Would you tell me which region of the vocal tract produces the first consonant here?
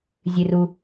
tongue tip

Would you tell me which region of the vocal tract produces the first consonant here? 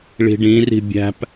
retroflex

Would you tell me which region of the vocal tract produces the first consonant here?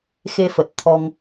velum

